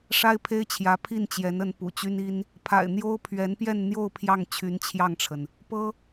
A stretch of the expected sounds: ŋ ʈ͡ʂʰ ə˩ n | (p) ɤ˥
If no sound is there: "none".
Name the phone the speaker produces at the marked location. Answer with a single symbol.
p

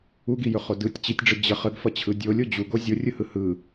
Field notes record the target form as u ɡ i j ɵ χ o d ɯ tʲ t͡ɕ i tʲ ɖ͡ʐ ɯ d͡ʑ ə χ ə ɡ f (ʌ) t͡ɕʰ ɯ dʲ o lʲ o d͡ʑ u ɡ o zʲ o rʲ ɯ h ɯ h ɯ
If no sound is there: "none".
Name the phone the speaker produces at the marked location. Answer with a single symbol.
ʌ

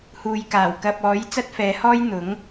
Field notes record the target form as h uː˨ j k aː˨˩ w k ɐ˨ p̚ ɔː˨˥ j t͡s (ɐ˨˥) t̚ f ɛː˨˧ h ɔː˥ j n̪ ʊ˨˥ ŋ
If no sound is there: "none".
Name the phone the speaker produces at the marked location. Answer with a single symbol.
ɐ˥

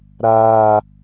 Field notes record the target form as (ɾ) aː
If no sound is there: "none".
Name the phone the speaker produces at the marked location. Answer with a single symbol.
ɾ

